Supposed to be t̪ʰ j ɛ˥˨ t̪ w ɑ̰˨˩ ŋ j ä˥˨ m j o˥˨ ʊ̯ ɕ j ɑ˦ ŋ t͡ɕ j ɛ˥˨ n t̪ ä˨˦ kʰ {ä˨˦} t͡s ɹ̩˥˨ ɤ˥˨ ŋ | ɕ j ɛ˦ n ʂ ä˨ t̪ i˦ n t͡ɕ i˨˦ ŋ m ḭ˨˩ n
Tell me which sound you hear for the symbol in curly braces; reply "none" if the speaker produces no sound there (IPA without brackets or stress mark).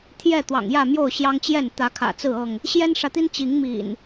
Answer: ä̰˨˩